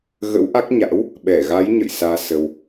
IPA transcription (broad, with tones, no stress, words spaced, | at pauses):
ɣə̰˧˥wʔa˦˥k̚ ɲa̰˧˥w | ɓɛ˧˩ɣa˨˦jɲə̰˧˨j saː˧sə˧w